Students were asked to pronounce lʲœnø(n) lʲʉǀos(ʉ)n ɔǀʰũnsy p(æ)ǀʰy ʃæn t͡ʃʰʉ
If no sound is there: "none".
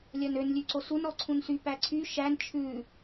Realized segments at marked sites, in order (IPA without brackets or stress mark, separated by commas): n, u, æ